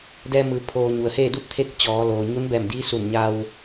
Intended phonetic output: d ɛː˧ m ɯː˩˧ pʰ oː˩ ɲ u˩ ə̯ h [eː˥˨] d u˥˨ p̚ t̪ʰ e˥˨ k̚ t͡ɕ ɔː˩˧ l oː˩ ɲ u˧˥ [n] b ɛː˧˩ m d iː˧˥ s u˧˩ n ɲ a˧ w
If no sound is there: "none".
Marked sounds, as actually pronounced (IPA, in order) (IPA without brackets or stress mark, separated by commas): eː˥˨, n